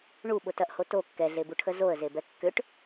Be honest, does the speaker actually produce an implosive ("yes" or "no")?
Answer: yes